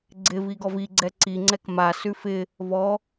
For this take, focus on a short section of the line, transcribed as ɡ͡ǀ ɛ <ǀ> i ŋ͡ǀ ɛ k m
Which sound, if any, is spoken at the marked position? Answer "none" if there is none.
ǀ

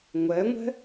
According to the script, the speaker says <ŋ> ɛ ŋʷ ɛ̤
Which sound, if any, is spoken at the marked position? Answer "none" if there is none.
ŋʷ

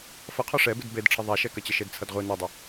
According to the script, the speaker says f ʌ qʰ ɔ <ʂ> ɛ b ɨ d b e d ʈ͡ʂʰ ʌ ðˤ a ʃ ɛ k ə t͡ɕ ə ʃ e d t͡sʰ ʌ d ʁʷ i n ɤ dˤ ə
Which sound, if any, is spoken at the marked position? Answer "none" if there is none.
ʂ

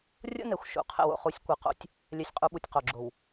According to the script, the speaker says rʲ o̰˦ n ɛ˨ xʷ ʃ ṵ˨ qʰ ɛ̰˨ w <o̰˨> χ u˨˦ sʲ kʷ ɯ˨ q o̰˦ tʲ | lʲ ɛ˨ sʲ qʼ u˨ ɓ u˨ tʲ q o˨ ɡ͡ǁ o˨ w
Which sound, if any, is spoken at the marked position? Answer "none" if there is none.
o̰˨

